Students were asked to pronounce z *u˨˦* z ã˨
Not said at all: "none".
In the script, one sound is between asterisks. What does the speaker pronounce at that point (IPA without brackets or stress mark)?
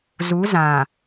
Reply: u˨˦